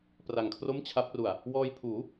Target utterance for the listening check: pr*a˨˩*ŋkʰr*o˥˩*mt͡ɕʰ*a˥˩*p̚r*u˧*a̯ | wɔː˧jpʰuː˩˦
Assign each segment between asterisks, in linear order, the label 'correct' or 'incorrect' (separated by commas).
correct, correct, incorrect, incorrect